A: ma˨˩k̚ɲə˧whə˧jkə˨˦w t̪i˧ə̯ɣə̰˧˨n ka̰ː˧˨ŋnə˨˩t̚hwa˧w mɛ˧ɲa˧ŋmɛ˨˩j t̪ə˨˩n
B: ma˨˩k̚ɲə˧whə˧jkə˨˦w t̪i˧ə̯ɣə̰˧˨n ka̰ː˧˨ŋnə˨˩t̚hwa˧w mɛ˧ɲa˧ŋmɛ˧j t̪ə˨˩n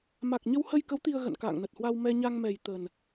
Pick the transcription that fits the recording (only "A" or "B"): A